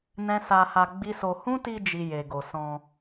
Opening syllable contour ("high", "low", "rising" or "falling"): high